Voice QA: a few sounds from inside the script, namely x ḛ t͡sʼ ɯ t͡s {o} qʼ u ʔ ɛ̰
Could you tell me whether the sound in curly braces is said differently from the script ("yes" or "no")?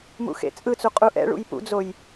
yes